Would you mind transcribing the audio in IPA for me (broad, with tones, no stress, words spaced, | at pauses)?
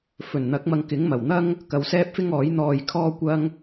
fɵ˨˩nn̪ɐ˨˥k̚mɐ˨˧ŋkɪ˨˥ŋ mɐ˨˩wn̪ɐ˥ŋ | kɐ˨wsɛː˥p̚fɪ˥ŋɔː˨˥j n̪ɔː˧jkʰɔː˥kʷɐ˥ŋ